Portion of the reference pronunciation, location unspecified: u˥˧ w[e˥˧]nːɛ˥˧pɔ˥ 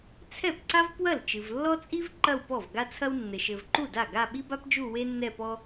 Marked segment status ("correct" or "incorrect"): incorrect